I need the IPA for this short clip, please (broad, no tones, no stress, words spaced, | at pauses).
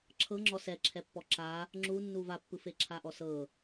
ǁʰɤ ŋ͡ǁɔsɛǁʰɛpːɔ ǁa | ŋ͡ǁunːu vapːɯfe ǁʰaʔɔsɤ